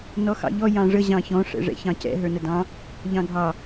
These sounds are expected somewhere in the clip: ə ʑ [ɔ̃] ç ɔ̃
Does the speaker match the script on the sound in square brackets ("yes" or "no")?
no